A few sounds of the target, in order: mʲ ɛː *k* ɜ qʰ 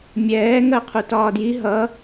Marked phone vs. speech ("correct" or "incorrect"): incorrect